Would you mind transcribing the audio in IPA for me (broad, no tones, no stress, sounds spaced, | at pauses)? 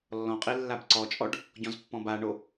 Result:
lː ɔ̃ qʼ i lː a b ǀ ɔ t͡ʃʼ ɔ ɖ | ɟ ɔ̃ z pː ɔ̃ b a ɳ o